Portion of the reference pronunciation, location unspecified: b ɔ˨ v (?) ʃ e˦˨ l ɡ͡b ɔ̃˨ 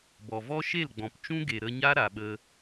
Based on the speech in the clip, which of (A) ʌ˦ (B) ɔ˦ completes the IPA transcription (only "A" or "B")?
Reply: B